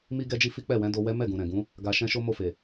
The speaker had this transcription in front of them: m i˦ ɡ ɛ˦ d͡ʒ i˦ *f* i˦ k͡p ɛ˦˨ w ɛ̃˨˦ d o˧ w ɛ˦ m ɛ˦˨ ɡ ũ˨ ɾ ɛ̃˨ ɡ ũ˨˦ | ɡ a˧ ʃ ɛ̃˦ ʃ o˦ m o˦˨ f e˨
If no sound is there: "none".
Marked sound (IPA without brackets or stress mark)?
f